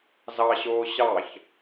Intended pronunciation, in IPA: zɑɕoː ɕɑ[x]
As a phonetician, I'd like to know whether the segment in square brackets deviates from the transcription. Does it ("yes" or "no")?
yes